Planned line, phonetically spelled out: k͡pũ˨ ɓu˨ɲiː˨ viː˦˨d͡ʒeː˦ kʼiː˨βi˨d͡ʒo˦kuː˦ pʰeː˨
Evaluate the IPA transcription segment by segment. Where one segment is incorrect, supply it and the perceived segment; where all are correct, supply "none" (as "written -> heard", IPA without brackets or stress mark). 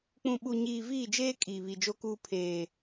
none